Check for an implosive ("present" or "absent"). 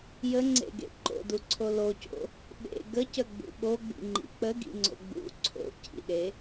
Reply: present